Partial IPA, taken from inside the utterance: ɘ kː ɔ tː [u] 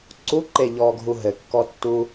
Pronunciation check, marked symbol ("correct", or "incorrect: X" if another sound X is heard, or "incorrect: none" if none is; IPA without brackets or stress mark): correct